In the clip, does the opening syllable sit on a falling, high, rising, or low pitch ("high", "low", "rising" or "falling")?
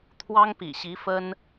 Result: high